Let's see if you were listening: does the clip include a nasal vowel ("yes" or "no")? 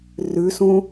yes